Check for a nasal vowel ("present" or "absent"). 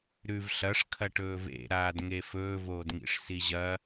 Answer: absent